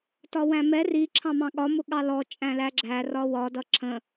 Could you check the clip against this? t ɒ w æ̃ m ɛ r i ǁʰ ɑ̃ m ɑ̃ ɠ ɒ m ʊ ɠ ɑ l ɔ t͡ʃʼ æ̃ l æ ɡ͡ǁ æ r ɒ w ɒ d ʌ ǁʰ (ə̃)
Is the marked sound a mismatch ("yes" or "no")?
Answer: no